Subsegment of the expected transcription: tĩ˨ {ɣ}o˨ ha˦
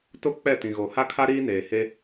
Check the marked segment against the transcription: correct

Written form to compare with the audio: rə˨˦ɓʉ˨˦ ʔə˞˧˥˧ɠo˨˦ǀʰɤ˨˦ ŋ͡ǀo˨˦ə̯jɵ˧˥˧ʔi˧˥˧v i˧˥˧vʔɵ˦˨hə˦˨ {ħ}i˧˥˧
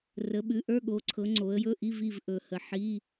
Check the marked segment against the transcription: correct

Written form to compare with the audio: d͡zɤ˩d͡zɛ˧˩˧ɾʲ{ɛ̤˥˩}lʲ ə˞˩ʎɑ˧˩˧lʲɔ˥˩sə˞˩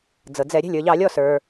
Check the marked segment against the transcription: correct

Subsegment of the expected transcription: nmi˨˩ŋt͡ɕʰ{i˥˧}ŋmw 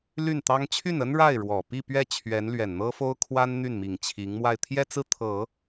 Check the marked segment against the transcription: incorrect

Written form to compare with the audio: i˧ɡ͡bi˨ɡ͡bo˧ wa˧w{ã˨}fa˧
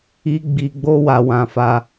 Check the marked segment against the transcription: correct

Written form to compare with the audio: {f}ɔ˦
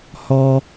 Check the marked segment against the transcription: incorrect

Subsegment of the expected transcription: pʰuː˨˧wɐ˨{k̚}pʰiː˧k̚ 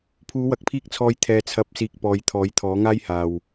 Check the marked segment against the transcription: correct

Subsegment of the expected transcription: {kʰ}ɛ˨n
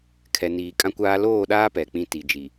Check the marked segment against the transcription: correct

